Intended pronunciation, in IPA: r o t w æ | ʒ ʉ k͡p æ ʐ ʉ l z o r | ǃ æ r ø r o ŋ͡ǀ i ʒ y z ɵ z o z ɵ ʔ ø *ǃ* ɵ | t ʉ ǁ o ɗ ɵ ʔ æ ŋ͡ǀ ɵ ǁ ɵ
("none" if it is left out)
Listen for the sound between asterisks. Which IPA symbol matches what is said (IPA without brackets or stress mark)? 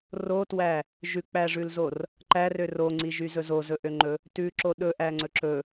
ŋ͡ǃ